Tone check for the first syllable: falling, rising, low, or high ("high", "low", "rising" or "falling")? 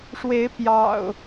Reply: rising